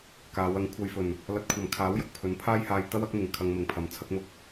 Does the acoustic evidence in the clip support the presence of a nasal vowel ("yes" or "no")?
no